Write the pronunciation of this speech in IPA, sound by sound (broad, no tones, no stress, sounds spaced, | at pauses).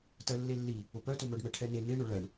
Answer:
t ɜ lː e lː i | ʊ p œ t ʊ m œ ɖ m ɛ ʈʰ ɛ n e n e ɳ ʊ ɭ ɜ ɳ